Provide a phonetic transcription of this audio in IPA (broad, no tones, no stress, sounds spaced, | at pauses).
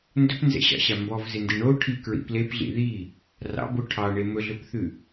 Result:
n d ɵ p n z ɛ̰ ɕ ɑ̰ ɕ a m b ɔ v z e n d i ɳ o ʈʰ i k ɹ ḭ p l e p ɮ ḭ ð i | r ɑ̰ b o ʈʰ ɑ ɳ e m ɵ ɮ ɵ p θ ʉ